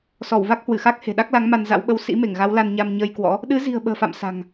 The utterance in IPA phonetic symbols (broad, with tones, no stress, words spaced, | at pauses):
sɔ˧˩wva˦˥k̚hwɨ˧˩xa˦˥k̚ he̤˨˩ɗa˦˥k̚la˨˦ŋ ma˧nza̰˧˥wɓə˧w sḭ˧˥ me˧˩ŋɣa˨˦wla˧nɲa˧m ɲəː˧jkwɔ̰˧˥ | ɗɨ˨˦zi̤˨˩ə̯ ɓə̤ː˨˩fa̰˧˨m sa̤˨˩ŋ